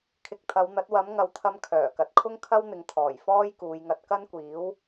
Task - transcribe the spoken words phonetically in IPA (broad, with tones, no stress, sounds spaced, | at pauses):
kʰ ɪ˨ k̚ t̪ʰ ɐ˨˧ w n̪ ɐ˨˥ t̚ w ɐ˨˥ m ŋ ɐ˨˧ w t̪ʰ ɐ˧ m kʰ œː˨˩ k ɐ˨ t̚ kʰ ʊ˥ ŋ kʰ ɐ˥ w n̪ ɪ˨ ŋ t̪ʰ ɔː˨˩ j f ɔː˥ j k uː˨˧ j ŋ ɐ˧ t̚ k ɐ˥ n kʷ iː˨˥ w